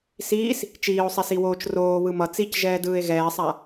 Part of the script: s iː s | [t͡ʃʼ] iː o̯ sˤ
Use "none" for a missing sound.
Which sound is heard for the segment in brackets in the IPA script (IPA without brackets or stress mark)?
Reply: t͡ʃ